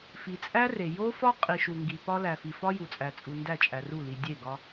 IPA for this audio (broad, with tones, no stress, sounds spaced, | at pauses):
f i˨ t͡sʼ æ˦ r e˨ j o˦ f ɒ˦ qʼ i˨ ʃ u˨ ŋ ɡ i˨ p ɒ˦ l æ˨ f i˨ f ɒ˦ j u˨ t͡sʼ æ˨ t͡sʼ u˨ n d æ˦˨ t͡ʃʼ æ˨ r u˦˨ l i˨ dʲ e˦˨ ɡ ɒ˦